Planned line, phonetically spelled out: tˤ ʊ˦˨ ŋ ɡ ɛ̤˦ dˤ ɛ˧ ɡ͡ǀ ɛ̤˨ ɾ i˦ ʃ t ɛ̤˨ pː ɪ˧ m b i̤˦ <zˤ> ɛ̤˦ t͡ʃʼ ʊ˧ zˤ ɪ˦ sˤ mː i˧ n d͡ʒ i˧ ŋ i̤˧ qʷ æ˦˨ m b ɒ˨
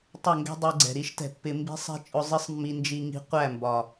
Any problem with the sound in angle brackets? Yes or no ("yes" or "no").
yes